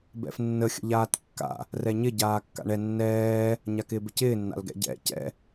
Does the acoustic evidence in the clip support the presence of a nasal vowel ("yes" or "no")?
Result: no